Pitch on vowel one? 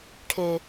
low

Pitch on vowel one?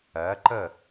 rising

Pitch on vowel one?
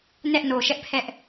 high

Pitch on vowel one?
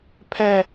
high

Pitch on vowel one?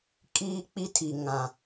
high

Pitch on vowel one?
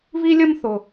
high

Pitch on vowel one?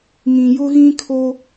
low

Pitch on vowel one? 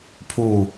falling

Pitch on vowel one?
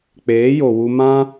rising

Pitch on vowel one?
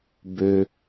low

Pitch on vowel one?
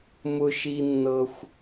high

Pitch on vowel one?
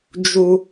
low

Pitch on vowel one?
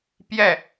falling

